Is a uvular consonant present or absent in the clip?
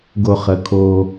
present